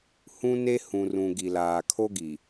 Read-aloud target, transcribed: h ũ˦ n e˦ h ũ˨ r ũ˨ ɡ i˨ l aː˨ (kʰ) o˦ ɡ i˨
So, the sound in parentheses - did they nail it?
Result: yes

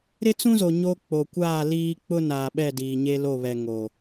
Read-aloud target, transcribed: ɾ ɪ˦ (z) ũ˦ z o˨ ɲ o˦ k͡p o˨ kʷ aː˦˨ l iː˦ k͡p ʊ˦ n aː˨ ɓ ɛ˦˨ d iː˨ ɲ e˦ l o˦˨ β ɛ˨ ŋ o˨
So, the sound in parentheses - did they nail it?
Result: no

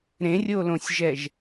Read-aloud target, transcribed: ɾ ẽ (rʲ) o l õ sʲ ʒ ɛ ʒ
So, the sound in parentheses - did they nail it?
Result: yes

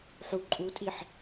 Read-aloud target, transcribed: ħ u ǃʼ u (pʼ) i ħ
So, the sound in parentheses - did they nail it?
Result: no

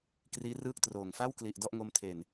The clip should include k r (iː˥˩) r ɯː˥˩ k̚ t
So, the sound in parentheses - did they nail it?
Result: no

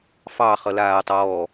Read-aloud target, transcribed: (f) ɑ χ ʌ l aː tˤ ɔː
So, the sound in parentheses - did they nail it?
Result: yes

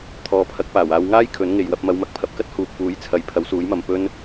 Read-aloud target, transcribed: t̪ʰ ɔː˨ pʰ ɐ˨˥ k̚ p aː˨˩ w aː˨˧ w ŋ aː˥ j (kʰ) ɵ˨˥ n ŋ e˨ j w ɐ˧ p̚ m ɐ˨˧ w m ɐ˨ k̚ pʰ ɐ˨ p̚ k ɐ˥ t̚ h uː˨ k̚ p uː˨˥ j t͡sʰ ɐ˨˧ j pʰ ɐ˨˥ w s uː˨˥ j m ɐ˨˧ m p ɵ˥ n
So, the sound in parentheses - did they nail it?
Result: yes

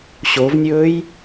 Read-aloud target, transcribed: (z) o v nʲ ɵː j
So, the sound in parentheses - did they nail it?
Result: no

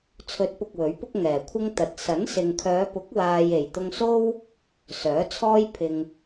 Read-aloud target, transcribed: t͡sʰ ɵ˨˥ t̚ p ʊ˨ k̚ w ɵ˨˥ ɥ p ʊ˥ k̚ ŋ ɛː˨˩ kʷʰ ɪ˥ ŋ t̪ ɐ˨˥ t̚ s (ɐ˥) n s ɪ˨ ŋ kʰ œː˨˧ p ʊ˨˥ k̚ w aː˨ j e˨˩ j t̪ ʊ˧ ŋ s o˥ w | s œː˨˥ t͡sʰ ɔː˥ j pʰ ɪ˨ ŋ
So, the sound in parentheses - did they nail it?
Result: no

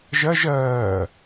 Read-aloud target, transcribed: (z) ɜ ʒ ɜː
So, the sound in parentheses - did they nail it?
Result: no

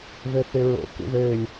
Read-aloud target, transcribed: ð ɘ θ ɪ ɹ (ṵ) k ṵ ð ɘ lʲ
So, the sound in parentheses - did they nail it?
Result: no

